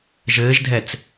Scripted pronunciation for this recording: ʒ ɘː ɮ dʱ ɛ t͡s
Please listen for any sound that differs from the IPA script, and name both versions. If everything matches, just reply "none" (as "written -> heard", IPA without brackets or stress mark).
ɮ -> ʒ